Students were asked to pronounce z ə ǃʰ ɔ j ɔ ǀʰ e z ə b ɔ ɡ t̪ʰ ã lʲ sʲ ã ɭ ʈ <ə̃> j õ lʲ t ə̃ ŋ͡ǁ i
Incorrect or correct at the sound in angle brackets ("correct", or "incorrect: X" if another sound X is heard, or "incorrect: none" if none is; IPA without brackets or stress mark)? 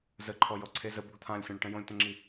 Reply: correct